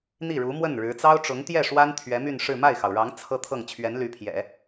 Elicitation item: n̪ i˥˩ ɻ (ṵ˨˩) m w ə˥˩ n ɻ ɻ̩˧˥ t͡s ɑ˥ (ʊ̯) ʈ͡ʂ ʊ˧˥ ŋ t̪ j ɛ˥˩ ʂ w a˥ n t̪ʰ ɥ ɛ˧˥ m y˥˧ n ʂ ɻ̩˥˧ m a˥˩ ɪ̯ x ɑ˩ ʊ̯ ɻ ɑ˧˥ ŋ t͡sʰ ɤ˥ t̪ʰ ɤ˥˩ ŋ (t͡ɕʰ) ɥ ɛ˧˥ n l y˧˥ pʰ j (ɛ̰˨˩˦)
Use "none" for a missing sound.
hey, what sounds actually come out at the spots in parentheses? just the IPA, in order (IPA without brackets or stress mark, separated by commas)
u˧˥, ʊ̯, t͡ɕʰ, ɛ̰˨˩˦